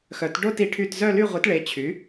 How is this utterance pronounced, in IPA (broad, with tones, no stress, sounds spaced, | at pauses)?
x œ˨˥ t ɖ o˥˧ t i˨˥ ʈʰ y˥˧ t z œ˥˧ l y˥˧ ʁʷ i˨˥ t ɭ e˨˥ t͡ɕʰ y˨˥